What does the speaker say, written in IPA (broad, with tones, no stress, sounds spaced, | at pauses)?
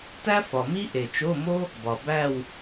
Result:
t æ˥ f ɒ˨ m i˥ ʔ e˨ t͡ʃ o˧˥˧ m o˥ | b ɒ˨ b æ˥˧ w